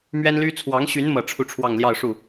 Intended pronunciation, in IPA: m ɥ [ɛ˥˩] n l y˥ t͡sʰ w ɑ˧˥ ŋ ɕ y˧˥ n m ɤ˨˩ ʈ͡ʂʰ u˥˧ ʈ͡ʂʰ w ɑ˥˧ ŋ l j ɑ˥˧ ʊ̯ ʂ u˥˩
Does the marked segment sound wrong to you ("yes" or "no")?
yes